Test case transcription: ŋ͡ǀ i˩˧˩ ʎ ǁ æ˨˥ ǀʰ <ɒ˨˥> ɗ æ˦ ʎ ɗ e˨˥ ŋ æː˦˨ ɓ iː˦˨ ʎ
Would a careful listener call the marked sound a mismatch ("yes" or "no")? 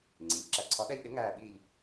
no